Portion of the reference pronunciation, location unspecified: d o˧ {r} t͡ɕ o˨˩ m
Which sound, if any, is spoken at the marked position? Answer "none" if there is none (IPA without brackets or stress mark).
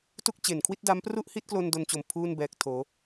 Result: n